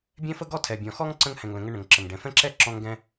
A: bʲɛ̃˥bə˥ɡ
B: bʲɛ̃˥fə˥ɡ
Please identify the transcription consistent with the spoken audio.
B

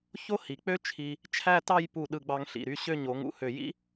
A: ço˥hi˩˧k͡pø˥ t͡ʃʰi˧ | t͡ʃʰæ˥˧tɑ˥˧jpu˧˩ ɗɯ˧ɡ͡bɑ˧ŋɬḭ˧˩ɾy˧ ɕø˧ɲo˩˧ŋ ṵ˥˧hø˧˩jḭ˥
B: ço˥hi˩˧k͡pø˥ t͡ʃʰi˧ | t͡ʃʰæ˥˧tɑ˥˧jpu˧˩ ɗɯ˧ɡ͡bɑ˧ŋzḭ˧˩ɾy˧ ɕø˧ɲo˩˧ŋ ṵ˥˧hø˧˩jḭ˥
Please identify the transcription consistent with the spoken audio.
A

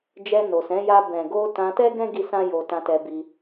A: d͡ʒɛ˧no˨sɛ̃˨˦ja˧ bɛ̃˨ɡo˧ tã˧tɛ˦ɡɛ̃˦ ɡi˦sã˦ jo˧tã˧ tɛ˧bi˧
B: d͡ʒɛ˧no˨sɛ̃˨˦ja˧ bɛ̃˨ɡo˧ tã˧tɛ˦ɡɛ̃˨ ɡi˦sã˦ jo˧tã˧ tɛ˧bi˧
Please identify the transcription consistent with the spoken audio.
A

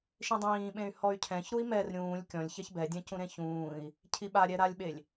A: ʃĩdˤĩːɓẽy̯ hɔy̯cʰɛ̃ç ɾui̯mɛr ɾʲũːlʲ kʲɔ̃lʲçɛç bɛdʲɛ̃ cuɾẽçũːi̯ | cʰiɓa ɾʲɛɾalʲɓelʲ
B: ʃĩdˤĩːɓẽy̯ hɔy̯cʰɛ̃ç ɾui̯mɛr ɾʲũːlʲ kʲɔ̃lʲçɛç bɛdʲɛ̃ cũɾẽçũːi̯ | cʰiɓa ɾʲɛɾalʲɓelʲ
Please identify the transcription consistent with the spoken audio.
B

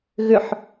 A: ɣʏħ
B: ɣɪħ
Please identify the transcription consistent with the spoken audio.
A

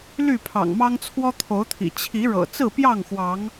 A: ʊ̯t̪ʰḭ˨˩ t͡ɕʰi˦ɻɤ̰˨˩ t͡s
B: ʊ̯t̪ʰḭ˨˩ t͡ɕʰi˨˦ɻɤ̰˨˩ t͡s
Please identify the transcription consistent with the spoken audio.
B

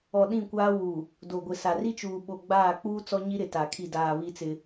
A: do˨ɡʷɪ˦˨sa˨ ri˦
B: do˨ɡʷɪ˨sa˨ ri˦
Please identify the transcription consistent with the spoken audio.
B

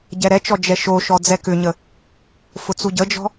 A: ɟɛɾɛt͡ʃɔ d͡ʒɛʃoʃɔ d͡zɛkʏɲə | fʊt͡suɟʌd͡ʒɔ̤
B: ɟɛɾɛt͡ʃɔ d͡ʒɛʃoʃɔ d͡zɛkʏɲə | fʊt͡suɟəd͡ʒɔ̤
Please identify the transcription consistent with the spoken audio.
B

